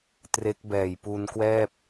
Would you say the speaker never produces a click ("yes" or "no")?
yes